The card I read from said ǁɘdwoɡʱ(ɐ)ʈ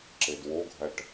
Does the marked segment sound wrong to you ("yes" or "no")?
no